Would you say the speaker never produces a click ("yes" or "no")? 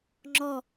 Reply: no